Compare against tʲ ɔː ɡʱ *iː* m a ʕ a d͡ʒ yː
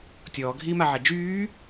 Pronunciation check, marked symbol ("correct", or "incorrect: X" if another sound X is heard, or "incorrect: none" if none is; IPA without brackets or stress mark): correct